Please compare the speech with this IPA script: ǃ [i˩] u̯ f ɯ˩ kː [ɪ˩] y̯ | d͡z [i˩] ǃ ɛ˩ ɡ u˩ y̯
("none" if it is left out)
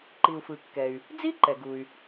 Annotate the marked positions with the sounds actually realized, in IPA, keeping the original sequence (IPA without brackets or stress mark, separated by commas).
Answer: i˩, ɛ˩, i˥